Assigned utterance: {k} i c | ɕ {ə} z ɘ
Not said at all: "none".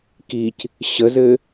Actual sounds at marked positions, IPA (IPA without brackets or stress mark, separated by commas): k, ə